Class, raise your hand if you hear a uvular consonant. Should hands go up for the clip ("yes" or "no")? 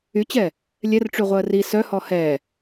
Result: yes